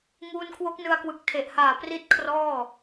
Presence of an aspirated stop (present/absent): present